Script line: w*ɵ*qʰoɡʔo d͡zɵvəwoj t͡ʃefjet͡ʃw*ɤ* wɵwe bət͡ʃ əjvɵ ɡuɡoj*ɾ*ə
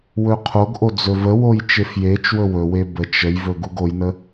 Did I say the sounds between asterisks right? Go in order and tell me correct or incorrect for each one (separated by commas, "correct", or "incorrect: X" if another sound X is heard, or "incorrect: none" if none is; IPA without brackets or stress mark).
correct, incorrect: ɵ, incorrect: n